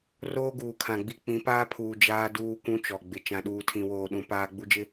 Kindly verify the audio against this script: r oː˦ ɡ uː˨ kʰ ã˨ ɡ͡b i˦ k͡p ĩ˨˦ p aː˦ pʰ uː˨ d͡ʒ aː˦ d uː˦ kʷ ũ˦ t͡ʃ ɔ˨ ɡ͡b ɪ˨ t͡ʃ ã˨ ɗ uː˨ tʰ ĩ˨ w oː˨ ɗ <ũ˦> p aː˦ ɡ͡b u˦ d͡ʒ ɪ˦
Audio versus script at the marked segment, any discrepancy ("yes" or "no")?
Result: no